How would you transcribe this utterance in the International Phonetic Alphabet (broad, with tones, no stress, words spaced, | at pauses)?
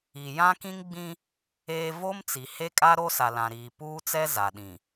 i˨jã˦ kĩ˦ŋɡ͡bĩ˦ | eː˦ vo˦mt͡si˨ he˦kʼa˦ ɾo˦sa˨lã˨ɾiː˨ puː˦t͡sɛ˦ za˨ ɗĩ˨